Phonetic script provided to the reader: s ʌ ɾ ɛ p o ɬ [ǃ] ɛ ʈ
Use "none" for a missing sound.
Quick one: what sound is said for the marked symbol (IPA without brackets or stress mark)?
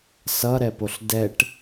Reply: d